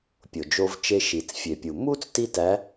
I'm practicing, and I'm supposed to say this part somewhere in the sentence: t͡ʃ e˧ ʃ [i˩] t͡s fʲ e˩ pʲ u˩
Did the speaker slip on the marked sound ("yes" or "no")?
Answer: no